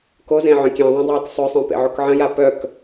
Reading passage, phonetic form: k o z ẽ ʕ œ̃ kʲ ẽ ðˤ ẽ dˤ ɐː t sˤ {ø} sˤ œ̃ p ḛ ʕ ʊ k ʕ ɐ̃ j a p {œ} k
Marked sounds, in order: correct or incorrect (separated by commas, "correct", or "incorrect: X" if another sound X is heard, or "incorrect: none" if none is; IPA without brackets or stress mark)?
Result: correct, correct